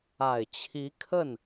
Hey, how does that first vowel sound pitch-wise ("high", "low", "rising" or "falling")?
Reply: low